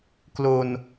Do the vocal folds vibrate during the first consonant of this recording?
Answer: no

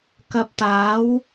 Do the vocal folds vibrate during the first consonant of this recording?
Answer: no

